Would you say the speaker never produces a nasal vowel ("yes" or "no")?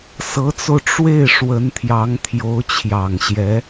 yes